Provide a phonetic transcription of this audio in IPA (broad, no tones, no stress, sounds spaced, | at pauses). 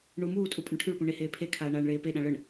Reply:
ɳ u m uː tʼ u pʼ ə ɳ ʈʰ y ɭ p ũ ɳ e h eː pʰ e kʰ aː ɳ aː ɳ ɭ eː p e ɗ ã ɭ ə ɳ